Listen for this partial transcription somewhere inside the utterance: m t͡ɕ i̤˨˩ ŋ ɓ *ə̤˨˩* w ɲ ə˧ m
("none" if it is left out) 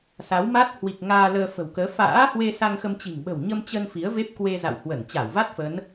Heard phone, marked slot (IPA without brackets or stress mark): ə̤˨˩